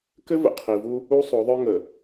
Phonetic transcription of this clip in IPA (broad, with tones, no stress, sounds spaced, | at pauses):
k ɘ˦ v ə̰˨ qʰ i˨ v u˦ | u˦ sˤ o˨˦ ðˤ œ˦ ŋ ə˨